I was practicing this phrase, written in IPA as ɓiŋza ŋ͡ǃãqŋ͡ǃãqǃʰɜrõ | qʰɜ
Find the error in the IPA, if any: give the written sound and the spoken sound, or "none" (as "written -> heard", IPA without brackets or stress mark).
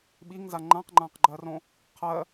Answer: ǃʰ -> ɡ͡ǃ